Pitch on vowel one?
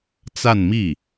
falling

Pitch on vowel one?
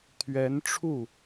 rising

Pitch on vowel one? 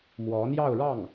rising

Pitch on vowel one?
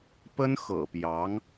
high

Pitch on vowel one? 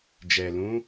low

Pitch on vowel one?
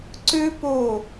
high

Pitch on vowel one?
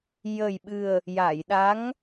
low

